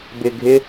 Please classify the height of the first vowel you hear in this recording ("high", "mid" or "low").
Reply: high